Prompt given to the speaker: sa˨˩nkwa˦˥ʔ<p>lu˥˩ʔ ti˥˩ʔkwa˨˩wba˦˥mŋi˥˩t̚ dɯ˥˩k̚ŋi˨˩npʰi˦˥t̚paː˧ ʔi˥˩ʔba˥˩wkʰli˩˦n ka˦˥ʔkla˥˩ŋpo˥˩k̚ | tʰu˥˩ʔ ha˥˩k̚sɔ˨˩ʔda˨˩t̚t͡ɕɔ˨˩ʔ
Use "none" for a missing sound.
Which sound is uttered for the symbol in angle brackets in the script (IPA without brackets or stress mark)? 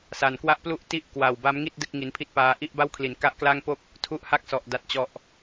p